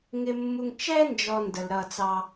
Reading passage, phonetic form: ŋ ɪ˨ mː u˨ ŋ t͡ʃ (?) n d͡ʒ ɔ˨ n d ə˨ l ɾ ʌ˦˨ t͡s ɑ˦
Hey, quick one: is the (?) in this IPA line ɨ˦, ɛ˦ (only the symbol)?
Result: ɛ˦